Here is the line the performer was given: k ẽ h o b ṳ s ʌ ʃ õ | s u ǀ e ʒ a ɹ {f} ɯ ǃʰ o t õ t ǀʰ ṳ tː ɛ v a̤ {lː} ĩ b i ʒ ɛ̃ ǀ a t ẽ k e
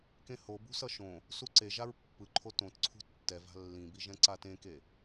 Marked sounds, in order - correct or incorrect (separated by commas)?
incorrect, correct